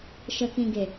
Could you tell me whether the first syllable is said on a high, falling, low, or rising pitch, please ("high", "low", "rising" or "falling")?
low